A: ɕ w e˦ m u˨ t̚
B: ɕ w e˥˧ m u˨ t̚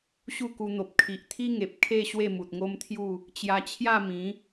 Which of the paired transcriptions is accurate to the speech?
B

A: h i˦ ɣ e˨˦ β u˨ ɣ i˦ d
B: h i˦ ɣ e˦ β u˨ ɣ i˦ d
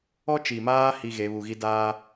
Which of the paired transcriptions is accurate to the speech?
A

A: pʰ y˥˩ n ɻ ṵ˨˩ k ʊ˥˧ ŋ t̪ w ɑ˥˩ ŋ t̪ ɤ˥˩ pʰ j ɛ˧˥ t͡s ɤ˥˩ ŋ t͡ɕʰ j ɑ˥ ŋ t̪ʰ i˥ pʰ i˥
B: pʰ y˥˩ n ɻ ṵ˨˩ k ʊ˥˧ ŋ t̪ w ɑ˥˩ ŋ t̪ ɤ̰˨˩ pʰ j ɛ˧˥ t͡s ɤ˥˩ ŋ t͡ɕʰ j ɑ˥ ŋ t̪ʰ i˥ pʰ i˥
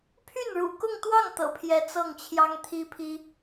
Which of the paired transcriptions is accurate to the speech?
B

